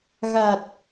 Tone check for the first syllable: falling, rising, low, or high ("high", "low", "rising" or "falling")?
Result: low